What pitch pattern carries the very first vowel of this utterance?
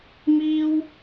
high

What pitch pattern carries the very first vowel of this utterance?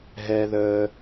low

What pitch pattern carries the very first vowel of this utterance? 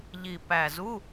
low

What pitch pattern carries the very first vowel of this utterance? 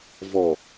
low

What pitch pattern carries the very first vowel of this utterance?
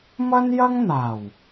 high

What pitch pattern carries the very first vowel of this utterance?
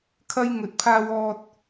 high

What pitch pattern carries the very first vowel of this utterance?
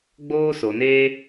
high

